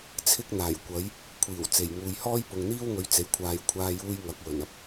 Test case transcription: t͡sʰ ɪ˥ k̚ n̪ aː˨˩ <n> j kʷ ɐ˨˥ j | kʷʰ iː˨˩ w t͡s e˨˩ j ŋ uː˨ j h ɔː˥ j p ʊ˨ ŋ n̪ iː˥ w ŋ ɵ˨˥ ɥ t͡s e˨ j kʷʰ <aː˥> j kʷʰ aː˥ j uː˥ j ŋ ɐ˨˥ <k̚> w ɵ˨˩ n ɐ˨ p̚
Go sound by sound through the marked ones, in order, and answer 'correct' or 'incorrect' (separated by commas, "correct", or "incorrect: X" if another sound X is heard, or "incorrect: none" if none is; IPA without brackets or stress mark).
incorrect: none, incorrect: aː˧, correct